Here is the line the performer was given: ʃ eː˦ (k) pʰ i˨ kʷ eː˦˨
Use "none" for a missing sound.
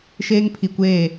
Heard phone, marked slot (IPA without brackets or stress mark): ŋ